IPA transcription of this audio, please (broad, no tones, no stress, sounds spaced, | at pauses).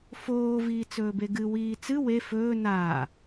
f oː v iː t͡s ɵː b e ɡ ɨ w iː t͡s ɨ w e f ɵː n aː